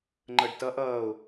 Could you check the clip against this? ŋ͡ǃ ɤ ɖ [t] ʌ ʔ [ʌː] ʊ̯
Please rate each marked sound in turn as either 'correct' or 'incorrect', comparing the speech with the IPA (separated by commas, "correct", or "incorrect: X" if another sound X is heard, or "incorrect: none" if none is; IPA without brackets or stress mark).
correct, correct